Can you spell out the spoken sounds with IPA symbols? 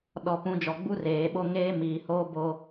ɗ ɔ˨ p ũ˨˦ d͡ʒ ɔ˨ ɡ͡b u˦ r eː˨ ɓ o˦ ŋ eː˦ m iː˨ h oː˦ b oː˦

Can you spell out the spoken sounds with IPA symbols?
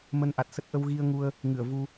m ə˧ n ʔ a˨˩ t̚ s ə˦˥ t̚ ʔ ə˧ w ɣ i˧ ə̯ ŋ u˧ ə̯ | ŋ ɨ˧˩ ə̯ v u˧

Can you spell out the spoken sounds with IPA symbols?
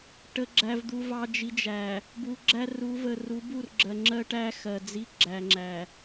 ʈ ə˨ ɡ͡ǁ æ˨ v d̪ u˨ v ɑ˨ d͡ʒ i˨ d͡ʒ æ˨ | b u˨ ɡ͡ǁ æ˦ r u˨˦ v ə˨ r u˨˦ b u˦˨ r ɡ͡ǁ ɜ˨ ŋ͡ǁ ɜ˦ ʈ æ˦ x ɜ˨ d͡z i˦ ɡ͡ǁ æ˨ ŋ͡ǁ æ˨

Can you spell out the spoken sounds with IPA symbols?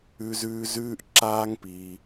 ʉ˦ z ʉː˦ z ʉː˦ ʔ ǁ aː˦ ŋ p i˧

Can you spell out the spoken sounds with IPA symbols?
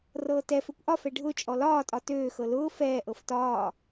r ɤː t ɛ f ø kʷ ʔ ɒ f ɛ ɖʱ ʊ t͡ʃʼ ɔ l ɒː tʼ ɒ t øː x ɤ l ʊː f ɛː ʔ ɤ f t ɒː

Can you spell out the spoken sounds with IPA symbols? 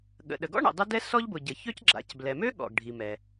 ɠ ə̰˩ ɗ ə˩ ɡ ɔ̰˥ ɳ ə̰˩ dˤ ə˥ d ɛ˥ s ɔ˥ ʎ b ʊ˩ ɟ ə˩ ç ø˥ c ɡ͡ǁ a̰˩ c b l ɛ˩ m ø˥ ɠ ɔ̰˩ ɡ ɖʱ i˩ m ɛ˩

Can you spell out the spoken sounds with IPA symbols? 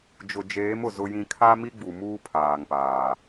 d͡ʒ ʊ˨ d͡ʒ eː˨˦ m ʊ˨ z ʊ˦ j ĩ˦ kʰ a˦ m i˦ ɡ͡b u˨ m uː˦ pʰ aː˨ ŋ p aː˨

